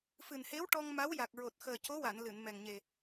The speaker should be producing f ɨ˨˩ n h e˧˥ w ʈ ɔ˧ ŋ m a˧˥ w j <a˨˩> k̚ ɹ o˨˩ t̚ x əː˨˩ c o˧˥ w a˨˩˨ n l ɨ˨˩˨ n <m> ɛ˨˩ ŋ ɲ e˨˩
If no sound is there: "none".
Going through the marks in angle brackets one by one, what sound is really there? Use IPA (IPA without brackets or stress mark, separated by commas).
a˨˩, m